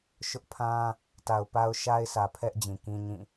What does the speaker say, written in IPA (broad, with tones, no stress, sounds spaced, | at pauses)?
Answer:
ʃ ʊ˦ ʔ pʰ ã˦ | t a˨ ʊ̯ p a˦ ʊ̯ ʃ a˦ ɪ̯ sʰ ä˨ pʰ ɛ˦ ʔ d͡ʑ ĩ˨ k ĩ˦ ɲ ĩ˦˨